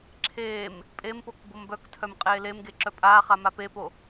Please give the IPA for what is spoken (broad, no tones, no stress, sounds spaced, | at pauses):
ǁʰ eː m | pʼ e m p o k b o m b œ k tʰ œ m qʼ eː l e m ɡ e ǁ œ pʼ aː χ a m a p e p o